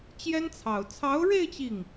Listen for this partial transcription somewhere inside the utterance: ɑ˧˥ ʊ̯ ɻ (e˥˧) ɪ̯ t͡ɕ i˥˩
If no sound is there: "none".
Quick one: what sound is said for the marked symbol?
e˥˧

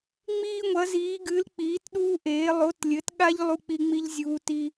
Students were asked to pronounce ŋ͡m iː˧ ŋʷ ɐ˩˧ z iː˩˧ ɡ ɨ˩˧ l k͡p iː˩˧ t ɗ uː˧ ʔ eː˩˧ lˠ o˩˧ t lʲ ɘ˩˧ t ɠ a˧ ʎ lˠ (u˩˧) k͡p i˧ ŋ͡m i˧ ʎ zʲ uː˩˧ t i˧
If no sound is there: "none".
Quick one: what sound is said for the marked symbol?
u˧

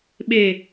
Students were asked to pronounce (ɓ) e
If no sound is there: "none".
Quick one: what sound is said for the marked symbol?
ɓ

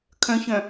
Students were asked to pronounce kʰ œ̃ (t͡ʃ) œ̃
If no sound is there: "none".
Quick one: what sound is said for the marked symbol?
ç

